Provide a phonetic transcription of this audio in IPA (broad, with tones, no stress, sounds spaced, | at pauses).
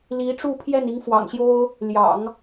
l i˧˥ ʈ͡ʂ u˥˧ pʰ j ɛ˥˩ n i˧˥ ŋ f w ɑ̰˨˩ ŋ ɕ j o˥ ʊ̯ | l j ɑ̰˨˩˦ ŋ